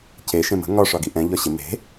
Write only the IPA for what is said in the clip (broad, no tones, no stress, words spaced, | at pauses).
ce ʃẽmə̤ ŋɒ ʂɒɡiʔɛ̃ ʎɒɕɪ me̤